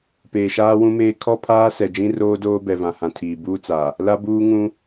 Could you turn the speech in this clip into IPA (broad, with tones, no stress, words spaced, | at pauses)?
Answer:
peː˨ʃaː˦wũ˦meː˦ kʰɔ˦pʰaː˦ sɛ˨d͡ʒĩ˦roː˦doː˦ bɛ˨vã˨hã˨ tʰiː˨ buː˦t͡sa˨ | la˦buː˦ŋũ˦